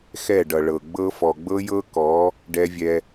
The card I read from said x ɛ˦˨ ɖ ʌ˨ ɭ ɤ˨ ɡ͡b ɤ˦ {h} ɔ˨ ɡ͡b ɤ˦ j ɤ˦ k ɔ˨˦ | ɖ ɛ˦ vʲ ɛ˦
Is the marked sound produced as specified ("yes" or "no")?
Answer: no